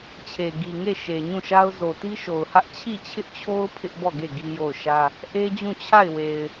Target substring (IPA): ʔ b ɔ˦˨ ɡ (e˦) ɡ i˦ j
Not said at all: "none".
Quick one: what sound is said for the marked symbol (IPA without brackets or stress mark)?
e˦˨